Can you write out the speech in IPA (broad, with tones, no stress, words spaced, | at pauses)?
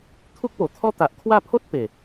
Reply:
t̪ʰu˦k̚po˨˩t̪ʰɔ˦ t̪a˨ʔkʰwa˥˧ pʰo˦t̚ pe˨˩